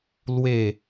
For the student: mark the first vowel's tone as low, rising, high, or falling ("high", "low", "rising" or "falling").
falling